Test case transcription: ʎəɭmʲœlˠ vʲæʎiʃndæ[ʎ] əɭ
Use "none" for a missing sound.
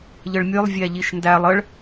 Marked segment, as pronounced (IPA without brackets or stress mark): lˠ